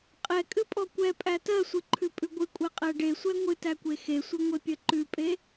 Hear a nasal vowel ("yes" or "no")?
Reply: no